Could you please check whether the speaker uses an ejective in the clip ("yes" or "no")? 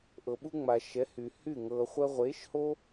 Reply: no